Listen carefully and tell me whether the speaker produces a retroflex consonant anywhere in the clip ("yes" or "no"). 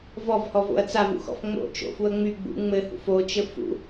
no